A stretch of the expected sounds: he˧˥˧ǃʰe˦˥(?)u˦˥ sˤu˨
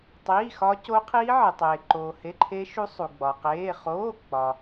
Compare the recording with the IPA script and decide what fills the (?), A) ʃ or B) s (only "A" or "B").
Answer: A